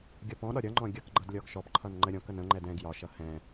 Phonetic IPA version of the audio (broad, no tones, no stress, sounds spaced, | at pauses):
ɡʲ ʌ p ɔ̃ ɗ ɒ ɾʲ ʌ ŋ͡ǃ ɔ̃ ɡʲ ʌ k ɡ͡ǃ ʌ d lʲ ɔ ɡ ʃ ɔ p ǃʰ ʌ n ŋ͡ǃ ə ɾʲ ɔ̃ k ə n ə̃ ŋ͡ǃ ɛ d ɛ̃ ɡ j ɒ ʃ ʌ h ɛ̃